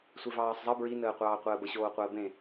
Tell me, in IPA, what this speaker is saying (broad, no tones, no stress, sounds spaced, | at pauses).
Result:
sʷ e v ɑː sˤ zˤ ə b ɹ i n əː qʷ ɑː qʷ əː b ə ɕ oː qʷ əː b ẽ